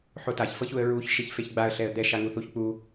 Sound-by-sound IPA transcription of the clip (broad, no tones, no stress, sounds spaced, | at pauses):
ħ o t a ç f ɤ ç u ə̯ ɹ u ç ʃ e ç f e ç ɡ͡b a ə̯ ɬ ɛ ə̯ d̪ ɛ ʃ a ŋ u θ u ç k͡p u